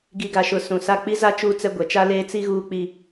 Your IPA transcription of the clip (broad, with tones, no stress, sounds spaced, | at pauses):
ɡ i˨ ɡ a˨ ʃ ʊ˨ s ũ˨ s a˦˨ k͡p i˦ z a˦ t͡ʃ uː˦ t͡s ɛ˦ ɡʷ ɛ˨ t͡ʃ a˦ l eː˦ t͡s i˦ ɣ uː˦ k͡p i˦